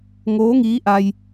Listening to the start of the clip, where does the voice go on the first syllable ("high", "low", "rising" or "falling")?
rising